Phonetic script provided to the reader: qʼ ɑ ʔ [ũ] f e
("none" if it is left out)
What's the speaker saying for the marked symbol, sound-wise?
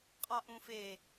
ũ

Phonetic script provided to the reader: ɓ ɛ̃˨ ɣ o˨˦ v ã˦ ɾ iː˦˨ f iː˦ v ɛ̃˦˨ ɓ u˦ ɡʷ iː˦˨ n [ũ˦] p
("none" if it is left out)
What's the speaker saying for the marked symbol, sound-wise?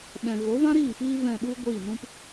ũ˦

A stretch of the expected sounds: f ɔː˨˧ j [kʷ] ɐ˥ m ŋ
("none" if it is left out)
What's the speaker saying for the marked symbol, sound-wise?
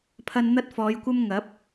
kʷ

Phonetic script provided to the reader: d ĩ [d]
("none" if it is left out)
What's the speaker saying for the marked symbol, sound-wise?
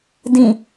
none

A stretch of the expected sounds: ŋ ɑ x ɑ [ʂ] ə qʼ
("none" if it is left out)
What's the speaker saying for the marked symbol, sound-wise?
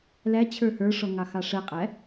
ʂ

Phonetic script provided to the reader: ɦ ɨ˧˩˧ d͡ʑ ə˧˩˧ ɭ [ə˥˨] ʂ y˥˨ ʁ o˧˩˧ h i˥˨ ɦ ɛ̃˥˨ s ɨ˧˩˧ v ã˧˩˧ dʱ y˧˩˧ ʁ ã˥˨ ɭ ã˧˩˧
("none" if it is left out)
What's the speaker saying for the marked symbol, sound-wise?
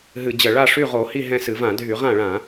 a˥˨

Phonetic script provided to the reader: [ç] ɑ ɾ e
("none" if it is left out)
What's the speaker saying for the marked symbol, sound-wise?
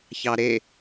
ç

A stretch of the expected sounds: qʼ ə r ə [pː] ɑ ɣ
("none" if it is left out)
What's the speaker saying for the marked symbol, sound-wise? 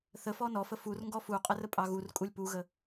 pʼ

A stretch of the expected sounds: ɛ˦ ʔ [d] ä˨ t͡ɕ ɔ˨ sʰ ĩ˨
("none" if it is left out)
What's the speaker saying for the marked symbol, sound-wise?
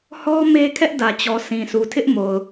d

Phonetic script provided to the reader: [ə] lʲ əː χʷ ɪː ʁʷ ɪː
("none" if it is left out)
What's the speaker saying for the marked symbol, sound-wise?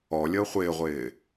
ɔ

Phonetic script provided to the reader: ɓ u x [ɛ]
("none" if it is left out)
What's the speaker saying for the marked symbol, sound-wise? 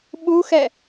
ɛ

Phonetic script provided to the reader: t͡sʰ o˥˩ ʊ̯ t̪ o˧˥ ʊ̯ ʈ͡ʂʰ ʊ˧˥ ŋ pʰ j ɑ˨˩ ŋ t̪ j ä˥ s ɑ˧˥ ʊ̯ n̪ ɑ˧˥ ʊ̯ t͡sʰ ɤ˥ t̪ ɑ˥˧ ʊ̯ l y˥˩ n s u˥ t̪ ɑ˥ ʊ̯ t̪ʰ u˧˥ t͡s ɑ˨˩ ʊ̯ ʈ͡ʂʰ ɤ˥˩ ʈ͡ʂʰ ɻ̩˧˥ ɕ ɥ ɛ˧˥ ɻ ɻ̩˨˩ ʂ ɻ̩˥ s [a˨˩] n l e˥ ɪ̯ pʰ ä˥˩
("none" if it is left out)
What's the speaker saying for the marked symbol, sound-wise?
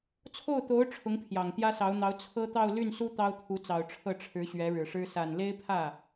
a˨˩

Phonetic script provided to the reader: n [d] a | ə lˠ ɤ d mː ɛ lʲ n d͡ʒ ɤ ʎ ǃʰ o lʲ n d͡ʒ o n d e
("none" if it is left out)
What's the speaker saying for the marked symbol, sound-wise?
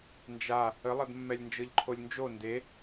d͡ʒ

